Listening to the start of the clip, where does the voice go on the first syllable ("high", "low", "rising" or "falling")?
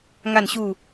falling